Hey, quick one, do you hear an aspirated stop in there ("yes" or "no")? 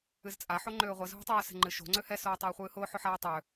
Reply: no